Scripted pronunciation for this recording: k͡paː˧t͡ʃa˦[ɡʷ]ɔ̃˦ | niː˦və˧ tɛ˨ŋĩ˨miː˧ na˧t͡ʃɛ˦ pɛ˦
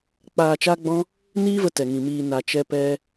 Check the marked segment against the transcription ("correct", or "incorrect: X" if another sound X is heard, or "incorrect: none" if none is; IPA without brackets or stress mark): incorrect: ɡ͡b